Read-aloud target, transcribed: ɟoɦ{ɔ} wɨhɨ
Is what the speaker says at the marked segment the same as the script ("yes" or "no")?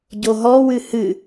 yes